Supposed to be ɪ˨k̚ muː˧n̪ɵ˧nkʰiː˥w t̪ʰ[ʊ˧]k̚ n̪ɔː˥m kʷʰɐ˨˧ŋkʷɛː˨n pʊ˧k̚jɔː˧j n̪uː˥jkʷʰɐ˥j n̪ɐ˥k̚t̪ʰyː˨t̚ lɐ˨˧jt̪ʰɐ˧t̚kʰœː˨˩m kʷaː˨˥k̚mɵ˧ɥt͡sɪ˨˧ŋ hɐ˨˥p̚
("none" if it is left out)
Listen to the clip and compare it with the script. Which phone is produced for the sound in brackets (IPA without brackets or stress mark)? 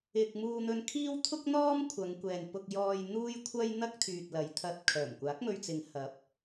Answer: ʊ˥